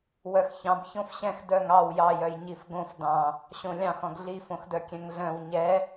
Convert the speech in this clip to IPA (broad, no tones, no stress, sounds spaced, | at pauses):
w œ x ç ɑ̃ b ç õ f ɕ ɛ̃ x d œ ŋ ɑ w j ɑ j œ j ɲ i f ɡ õ f d ɑ̃ | ɕ õ lʲ ɑ̃ x ɔ̃ ɡ ɮ i f õ x d œ kʲ ɛ̃ ŋ ɮ œ̃ w ɲ ɛ